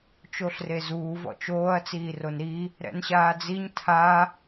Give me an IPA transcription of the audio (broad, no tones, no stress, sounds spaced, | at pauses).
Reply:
t͡ʃ o ɬ r e z uː v ɔ̰ t͡ʃ oː ɐ̯ t͡s iː r o n ɾ i | ɾ ɛ̰ n ɕ aː d͡z i ɲ tʰ a